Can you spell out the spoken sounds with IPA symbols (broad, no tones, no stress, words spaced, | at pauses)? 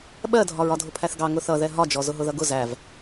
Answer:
ɓɜdʱɒɹ ɒdʱʊpʰæθɡɑ ŋʊθʌðɛ ɦɒd͡ʒɔ zʊɦʊðʌɡʊ zæv